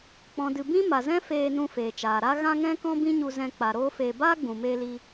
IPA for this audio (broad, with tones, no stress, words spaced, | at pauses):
k͡pɔ̃˨dɨ˨ bĩ˦ma˨zɛ̃˦ feː˧ nũ˧feː˨t͡ʃaː˨ ɾa˦ ɣã˦ŋɛ̃˦kɔ̃˦ bĩ˦ɲu˧zɛ̃˧ k͡pa˨ ɾoː˦feː˧ baː˦ɡ͡bũ˨meː˧li˧